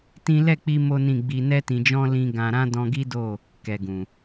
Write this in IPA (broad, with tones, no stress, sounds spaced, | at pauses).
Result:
t ĩ˦ l ɛ˦˨ k͡p i˧ m o˦ n ĩ˦˨ ɡ͡b i˧ n ɛ˧ t ĩ˨ d͡ʒ ɔ̃˧ l ĩ˧ ɡ ã˨ ɾ ã˧ d ɔ̃˧ ɡ i˦ d o˦˨ | k ɛ˨ ɡ ũ˨